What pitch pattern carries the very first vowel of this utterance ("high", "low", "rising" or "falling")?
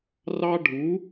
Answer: high